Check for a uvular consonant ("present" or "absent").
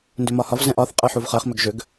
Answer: present